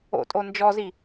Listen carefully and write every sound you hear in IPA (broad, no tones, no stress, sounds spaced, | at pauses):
o̰ tʼ o n d͡ʒ ɔ z i